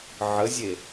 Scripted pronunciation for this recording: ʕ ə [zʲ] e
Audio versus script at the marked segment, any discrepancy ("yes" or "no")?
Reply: no